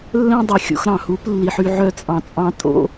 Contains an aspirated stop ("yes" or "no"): no